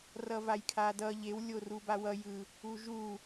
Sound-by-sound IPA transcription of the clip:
r ʌ v a j kʰ a d ʌ ʎ e w lʲ o r u b a w ʌ j ɯ | u ʒ u

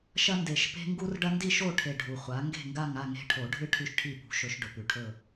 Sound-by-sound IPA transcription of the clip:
ʃ ɐ˦ n d e˨˩ ʃ p e̤˦ ŋ ɡ u˦ r ɖ ɐ˦ n d i˦˨ ʃ o˦˨ ʈʰ e˨˩ ɖʱ u˨˩ χʷ a˨˥ ŋ ɡ e̤˦˨ ŋ ɡ a˦˨ ŋ a˦˨ ŋ e̤˦˨ ʈʰ o˨˩˦ ɖʱ ɨ˦ ʈʰ ʉ˦ ʃ ʈʰ i˦˨ p ṳ˨˥ ʃ ɵ˨˩˦ ʃ ɖ ɵ˨˩ p ʉ˨˩˦ ʈʰ ɵ˦˨

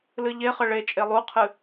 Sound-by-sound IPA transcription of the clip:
l ɨ ʎ e χ ə ɭ e t͡ʃʼ e lˠ u qʰ ɨ

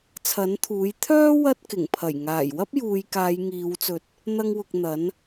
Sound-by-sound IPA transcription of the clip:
t͡sʰ ɐ˨˥ n t̪ʰ uː˨˥ j t̪ʰ œː˥ w ɐ˥ t̚ k ɪ˨˩ ŋ pʰ ɐ˨˩ j ŋ aː˨˩ j w ɐ˥ p̚ j uː˨ j k aː˨˧ j ŋ iː˨˧ w t͡s ɵ˨˥ t̚ | n̪ ɐ˥ ŋ w ʊ˧ k̚ n̪ ɐ˨˥ n

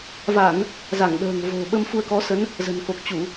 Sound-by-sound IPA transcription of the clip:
v a˧˩˨ n | z a˧˩ ŋ ɗ ə̤ː˨˩ ŋ v o̤˨˩ ɓ ə˧ m f u˧ ə̯ k ɔ˨˦ s ə˨˦ n | z ə̤˨˩ n k o˨˩ k̚ t͡ɕ u˧˩˨

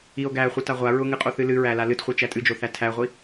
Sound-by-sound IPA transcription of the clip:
i o̯ ɡ æ χʷ ɨ t a ʁʷ a ɹ ʊ ŋ ɨ qʼ o θ ɨ l ɨ ɹ æ l a l ɨ t χʷ i t͡ʃ æ tʼ ɨ d͡ʒ o θ æ tʰ æ ʁʷ i

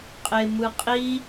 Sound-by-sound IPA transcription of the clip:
qʼ e m ɯ qʼ i

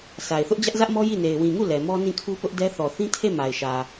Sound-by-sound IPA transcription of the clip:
s a˨ ɪ̯ θ ʊ˦ ʔ d͡ʑ ä˦ ʔ z ä˦ ʔ m ɔ˦ j i˦˨ n e˨ ɪ̯ w ĩ˨ ŋ u˦˨ l ɛ˨ m ɔ˦ n ĩ˦˨ kʰ u˦ p ʊ˦ ʔ d ɛ˦ θ ɔ˨ θ ĩ˦ tʰ e˦˨ m a˨ ɪ̯ ʃ ä˨

